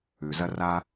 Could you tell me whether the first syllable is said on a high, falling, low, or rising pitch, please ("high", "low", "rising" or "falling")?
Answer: low